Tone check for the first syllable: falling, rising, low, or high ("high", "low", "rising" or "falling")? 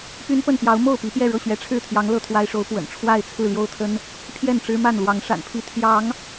high